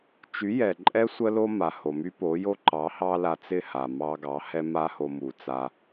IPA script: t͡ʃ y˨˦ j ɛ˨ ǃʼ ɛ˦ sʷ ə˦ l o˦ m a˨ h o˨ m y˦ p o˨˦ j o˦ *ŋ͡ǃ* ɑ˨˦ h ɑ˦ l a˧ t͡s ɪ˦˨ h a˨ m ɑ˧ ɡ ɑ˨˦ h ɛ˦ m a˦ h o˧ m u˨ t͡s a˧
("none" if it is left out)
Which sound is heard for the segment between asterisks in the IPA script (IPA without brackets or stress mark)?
ǃ